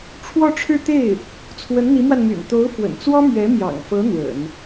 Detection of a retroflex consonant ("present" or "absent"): present